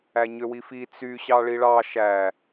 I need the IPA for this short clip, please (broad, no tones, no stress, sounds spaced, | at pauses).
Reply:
æ ɲ ø w i f i t͡s y ɕ ɑ ɭ i ɭ ɑ ʃ æ